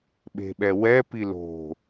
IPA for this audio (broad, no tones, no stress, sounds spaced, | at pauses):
ɓ e̤ ɓ ɛ w ɛ p i l o̤